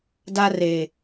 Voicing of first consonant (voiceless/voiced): voiced